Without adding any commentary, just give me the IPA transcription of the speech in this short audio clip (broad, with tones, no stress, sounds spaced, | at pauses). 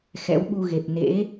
x ɛ̰˧˥ w ɓ u˧ ɣ e˨˩ p̚ n ḛ˧˥